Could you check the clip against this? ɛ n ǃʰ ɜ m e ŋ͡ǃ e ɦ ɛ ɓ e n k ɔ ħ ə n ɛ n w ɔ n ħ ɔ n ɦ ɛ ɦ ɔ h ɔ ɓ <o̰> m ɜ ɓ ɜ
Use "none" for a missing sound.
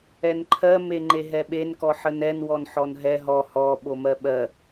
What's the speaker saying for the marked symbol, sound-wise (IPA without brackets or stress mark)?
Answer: o